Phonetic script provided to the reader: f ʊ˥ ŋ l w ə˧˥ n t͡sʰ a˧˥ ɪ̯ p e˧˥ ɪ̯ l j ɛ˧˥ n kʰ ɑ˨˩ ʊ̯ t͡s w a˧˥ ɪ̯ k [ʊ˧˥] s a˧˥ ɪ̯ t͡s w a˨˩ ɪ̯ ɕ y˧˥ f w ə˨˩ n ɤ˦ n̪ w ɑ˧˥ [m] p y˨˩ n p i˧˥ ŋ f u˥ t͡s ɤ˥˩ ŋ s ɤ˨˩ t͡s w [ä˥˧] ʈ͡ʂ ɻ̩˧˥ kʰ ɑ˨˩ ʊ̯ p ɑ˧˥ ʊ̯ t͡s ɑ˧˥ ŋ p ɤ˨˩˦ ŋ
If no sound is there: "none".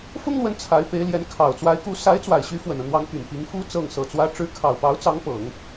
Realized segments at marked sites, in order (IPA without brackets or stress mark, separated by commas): u˧˥, ŋ, ä˧˥